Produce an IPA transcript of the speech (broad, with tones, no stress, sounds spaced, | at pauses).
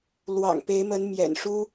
l w ɑ̰˨˩ ŋ p e˨˦ ɪ̯ m ə˨˦ n m j ɛ̰˨˩ n ʂ u˦